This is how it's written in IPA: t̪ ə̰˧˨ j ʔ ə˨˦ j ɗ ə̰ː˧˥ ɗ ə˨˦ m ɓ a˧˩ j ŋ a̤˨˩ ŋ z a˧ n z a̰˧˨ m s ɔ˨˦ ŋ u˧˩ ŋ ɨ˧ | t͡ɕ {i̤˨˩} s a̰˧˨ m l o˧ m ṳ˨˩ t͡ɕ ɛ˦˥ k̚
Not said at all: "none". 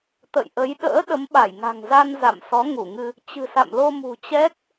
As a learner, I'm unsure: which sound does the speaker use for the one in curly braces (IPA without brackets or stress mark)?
ɨ̤˨˩